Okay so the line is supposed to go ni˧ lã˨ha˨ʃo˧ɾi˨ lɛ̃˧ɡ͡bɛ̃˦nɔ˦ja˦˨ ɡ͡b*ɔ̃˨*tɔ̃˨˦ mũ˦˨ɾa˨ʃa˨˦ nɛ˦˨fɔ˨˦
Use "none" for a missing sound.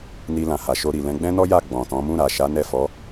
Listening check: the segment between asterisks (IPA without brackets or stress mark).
ɔ̃˨